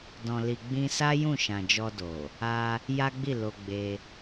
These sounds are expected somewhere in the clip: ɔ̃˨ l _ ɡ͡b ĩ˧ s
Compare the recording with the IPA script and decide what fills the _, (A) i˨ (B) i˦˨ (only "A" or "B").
A